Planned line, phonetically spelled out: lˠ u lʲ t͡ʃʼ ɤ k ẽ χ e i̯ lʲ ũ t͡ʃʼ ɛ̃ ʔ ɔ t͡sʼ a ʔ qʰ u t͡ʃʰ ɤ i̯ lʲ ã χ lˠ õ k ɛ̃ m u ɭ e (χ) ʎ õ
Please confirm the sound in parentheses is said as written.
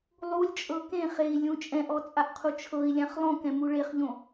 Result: yes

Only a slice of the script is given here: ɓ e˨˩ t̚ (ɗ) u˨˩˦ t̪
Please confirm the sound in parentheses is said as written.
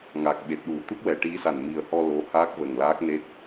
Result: yes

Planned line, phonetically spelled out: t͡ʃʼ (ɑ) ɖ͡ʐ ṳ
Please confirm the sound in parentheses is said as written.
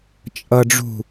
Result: no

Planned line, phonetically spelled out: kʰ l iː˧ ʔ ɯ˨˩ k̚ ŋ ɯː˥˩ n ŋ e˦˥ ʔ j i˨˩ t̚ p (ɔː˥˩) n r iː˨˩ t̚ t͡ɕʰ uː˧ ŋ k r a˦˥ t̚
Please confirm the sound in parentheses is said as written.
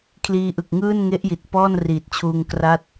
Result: yes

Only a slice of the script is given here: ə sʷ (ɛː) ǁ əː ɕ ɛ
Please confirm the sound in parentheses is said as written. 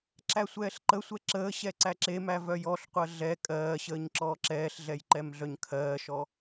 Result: no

